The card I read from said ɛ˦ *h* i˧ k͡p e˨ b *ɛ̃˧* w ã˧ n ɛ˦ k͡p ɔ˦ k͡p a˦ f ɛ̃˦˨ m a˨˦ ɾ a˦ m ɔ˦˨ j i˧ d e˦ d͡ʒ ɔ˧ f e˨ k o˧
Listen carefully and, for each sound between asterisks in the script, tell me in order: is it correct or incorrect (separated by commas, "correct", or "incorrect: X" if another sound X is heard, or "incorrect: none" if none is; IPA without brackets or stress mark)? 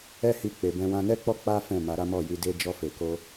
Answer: correct, correct